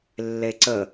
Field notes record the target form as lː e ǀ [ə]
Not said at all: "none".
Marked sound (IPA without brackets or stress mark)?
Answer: ə